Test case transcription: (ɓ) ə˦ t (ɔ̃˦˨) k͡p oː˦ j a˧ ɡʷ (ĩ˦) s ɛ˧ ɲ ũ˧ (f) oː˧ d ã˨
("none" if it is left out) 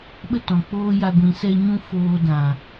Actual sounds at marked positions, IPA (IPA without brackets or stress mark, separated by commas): ɓ, ɔ̃˨, ĩ˨, f